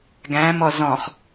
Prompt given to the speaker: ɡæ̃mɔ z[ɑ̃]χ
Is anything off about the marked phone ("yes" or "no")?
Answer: yes